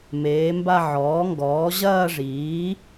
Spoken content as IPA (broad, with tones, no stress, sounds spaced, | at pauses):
m eː˩˥ m b a˥˧ ʕ ɔː˩˥ ŋ ɡ ɔː˩˥ ʑ ɐː˥˧ ʐ iː˩˥